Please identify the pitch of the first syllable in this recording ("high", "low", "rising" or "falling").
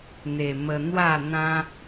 low